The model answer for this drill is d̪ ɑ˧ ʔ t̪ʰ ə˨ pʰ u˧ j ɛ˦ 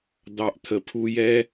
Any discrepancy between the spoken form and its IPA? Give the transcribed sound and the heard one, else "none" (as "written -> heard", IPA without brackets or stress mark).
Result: none